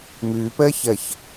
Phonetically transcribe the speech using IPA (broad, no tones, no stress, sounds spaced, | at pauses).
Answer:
m ʉː p əː ç ə ç